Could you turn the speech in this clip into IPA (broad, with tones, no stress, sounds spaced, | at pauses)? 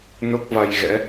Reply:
n o˦˥ k̚ v a˧ j ɣ ɛ̰˧˥